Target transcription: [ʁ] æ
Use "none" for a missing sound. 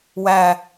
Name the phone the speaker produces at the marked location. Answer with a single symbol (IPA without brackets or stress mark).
w